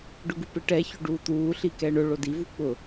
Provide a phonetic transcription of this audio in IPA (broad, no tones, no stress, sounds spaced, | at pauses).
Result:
ɖ ʊ ɡ u p ɪ ʈ ɛ ç o ɖ uː t̪ uː ɬ i k ɛ ɳ ʊ ɭ o d i v u k͡p ʊ